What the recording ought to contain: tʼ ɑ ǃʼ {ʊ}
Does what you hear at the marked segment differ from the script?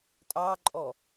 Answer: yes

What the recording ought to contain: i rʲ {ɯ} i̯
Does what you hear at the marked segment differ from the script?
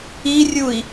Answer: yes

